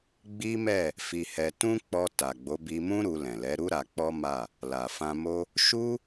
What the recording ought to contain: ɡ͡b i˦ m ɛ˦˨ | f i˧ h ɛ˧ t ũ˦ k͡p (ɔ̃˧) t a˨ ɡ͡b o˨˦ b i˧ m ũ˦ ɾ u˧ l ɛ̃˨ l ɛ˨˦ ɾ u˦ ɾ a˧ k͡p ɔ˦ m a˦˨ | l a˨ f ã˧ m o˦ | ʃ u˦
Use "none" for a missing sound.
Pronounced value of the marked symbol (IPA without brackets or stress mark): ɔ˧